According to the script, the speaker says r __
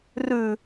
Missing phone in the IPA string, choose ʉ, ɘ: ʉ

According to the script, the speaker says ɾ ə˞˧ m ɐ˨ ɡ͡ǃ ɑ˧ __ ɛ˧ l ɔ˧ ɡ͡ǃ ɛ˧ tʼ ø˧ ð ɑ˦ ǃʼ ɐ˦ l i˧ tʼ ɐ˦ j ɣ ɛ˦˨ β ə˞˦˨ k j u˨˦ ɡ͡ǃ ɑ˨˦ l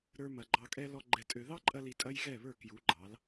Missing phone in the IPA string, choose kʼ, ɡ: kʼ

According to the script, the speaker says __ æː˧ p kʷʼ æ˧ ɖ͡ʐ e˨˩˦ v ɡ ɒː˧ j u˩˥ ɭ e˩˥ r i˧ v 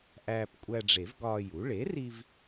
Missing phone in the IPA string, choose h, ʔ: ʔ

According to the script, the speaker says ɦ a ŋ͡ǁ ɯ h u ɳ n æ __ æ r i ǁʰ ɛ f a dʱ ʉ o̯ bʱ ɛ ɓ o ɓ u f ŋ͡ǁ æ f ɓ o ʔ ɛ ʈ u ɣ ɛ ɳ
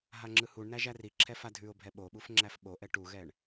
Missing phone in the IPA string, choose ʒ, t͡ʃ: ʒ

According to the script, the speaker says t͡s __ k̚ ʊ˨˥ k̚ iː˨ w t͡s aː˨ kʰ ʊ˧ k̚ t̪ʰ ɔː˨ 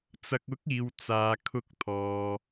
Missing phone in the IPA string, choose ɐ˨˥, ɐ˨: ɐ˨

